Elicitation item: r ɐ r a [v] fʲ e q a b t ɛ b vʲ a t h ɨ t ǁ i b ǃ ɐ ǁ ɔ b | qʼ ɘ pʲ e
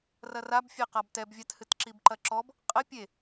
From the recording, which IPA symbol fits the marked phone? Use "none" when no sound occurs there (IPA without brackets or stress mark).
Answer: b